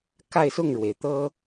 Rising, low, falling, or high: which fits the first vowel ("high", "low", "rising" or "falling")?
falling